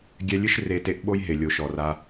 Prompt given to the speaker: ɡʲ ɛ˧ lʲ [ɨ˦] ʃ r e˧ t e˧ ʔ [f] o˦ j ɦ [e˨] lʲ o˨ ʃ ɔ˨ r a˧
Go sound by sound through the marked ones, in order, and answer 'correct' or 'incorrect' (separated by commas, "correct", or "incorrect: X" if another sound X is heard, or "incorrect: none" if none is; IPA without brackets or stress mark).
correct, incorrect: ɓ, correct